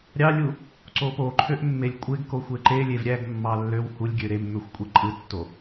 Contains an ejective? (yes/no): yes